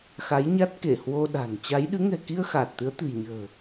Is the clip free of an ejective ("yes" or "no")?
yes